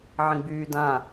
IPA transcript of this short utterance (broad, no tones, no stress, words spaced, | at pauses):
ʕĩɡ͡byː dã